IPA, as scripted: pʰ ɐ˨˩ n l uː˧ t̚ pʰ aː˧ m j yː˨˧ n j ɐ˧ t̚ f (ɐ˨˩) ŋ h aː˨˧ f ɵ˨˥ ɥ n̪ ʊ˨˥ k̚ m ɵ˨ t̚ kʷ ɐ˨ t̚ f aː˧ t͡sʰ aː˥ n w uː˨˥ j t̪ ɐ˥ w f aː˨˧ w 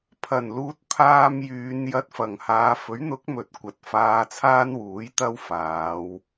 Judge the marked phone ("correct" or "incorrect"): correct